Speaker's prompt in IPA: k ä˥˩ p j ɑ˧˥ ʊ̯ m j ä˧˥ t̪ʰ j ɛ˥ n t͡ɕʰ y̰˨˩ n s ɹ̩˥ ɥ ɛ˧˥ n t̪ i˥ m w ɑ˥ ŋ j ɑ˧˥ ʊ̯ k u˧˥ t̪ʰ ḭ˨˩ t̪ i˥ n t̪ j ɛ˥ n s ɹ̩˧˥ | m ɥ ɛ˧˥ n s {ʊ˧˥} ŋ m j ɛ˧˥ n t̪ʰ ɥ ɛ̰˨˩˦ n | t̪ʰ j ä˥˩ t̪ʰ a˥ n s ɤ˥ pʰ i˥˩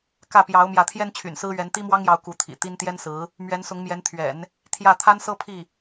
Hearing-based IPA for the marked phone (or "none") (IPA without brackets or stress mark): ʊ˧˥